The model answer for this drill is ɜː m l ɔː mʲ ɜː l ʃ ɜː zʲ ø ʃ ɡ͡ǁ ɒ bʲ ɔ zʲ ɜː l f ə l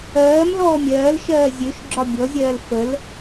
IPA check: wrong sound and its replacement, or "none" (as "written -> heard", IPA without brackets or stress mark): none